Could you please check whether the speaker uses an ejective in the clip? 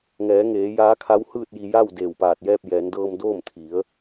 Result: no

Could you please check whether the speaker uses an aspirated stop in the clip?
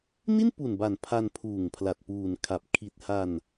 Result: yes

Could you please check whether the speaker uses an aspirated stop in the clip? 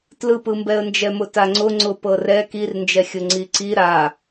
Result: no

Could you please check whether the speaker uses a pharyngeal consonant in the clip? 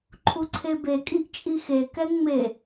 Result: no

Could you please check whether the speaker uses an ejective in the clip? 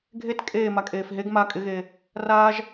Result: yes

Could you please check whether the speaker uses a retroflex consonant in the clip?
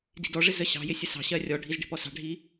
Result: yes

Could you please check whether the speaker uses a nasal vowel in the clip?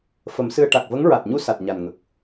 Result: no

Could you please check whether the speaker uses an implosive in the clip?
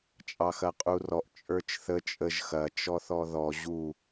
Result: no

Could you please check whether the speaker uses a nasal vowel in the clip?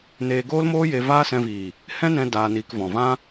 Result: yes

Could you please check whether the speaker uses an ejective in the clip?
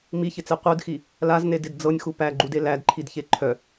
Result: no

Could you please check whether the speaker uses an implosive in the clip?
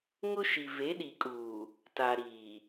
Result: yes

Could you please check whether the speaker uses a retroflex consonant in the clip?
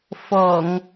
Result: no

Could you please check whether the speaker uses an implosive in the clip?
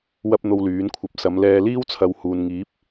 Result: no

